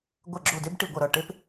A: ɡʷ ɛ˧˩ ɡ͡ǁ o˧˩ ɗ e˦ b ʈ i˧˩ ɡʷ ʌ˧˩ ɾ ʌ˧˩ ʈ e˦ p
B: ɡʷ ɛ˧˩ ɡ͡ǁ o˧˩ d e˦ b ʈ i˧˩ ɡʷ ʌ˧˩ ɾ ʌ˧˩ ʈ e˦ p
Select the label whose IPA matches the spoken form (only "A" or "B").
B